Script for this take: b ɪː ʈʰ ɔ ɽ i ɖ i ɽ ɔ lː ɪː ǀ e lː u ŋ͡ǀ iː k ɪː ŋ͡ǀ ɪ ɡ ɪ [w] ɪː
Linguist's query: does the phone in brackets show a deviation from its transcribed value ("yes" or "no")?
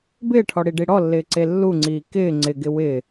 no